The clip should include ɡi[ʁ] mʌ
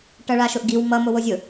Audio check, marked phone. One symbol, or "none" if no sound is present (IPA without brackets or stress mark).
w